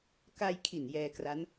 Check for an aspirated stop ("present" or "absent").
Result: present